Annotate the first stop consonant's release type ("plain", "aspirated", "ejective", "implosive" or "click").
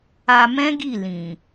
plain